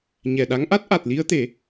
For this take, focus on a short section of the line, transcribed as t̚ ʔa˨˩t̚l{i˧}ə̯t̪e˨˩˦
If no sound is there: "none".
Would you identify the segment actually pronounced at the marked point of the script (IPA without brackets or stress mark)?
i˧